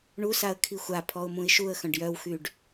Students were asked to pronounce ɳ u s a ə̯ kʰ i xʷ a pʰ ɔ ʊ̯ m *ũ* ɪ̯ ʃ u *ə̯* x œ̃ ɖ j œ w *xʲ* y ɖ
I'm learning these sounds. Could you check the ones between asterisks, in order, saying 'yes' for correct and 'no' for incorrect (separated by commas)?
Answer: yes, yes, no